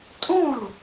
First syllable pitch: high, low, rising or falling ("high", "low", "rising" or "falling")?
falling